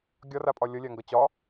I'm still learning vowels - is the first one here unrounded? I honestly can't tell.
no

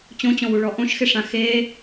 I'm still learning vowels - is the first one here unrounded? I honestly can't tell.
no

